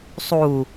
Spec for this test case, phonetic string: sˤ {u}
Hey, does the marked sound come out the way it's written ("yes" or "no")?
yes